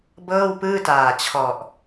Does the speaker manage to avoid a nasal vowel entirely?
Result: yes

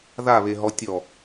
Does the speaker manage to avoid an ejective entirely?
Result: yes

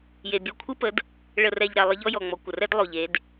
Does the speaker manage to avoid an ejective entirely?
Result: yes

